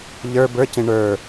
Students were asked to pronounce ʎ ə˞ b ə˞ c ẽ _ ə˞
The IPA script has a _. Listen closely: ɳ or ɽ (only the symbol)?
ɳ